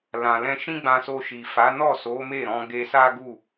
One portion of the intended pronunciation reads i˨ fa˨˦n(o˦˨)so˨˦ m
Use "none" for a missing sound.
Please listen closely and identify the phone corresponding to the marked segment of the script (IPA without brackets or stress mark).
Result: ɔ˦˨